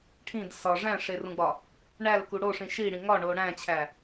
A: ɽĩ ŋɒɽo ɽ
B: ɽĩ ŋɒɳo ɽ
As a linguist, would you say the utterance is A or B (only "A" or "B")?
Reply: B